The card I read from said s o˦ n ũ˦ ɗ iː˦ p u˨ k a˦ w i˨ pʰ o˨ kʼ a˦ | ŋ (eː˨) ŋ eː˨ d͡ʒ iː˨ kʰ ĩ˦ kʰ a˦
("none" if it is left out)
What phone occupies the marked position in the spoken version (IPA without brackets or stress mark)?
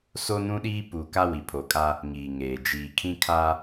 iː˨